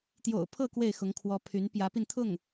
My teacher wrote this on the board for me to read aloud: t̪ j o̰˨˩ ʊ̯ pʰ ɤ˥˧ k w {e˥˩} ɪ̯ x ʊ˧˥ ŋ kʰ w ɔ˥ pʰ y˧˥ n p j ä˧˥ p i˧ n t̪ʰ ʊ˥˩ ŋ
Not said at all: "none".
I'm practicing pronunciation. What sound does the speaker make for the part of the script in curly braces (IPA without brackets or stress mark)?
e˥˩